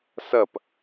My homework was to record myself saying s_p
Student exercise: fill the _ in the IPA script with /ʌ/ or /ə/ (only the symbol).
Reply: ʌ